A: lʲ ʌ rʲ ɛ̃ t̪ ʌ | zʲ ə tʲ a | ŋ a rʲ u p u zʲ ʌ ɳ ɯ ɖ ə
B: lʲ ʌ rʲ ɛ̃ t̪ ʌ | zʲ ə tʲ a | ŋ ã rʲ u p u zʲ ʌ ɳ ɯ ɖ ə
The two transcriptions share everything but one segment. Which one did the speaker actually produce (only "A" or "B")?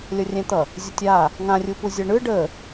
B